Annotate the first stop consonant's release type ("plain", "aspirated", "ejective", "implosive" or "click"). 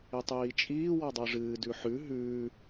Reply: plain